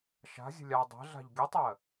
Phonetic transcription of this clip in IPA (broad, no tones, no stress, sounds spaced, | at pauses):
ʃ a̤ zʲ ə̤ lʲ a dˤ ɛ̤ ɮ a̤ ʎ ɡʲ ə tˤ ɜ